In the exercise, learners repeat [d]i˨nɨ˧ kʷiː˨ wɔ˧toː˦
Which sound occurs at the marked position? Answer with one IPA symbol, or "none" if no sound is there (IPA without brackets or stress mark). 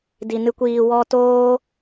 d